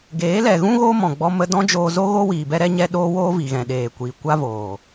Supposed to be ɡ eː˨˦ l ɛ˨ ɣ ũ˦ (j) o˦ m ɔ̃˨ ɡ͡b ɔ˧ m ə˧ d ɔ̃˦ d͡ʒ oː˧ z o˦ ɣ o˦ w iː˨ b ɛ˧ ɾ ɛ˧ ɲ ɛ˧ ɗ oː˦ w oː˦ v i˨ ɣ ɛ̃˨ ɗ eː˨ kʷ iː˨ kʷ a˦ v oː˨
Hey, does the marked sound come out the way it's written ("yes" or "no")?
no